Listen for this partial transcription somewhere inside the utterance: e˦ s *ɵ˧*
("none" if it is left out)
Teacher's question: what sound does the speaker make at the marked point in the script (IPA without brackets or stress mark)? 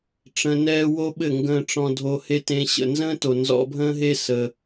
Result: ə˧